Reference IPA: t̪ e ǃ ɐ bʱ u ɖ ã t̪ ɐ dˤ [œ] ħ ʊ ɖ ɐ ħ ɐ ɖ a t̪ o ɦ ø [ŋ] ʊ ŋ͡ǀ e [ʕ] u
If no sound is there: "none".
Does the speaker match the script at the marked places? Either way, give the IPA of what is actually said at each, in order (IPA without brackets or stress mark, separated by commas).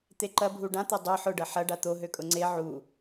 ø, kʼ, ʕ